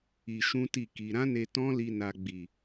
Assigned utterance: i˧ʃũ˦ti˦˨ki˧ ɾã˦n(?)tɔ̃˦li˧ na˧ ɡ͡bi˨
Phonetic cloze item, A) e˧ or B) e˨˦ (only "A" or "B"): A